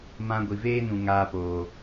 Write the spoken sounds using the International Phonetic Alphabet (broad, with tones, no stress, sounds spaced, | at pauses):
m ã˧ ɡʷ i˨ v eː˦ n ũ˨ ŋ aː˧ p oː˨